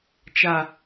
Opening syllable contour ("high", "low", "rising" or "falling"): low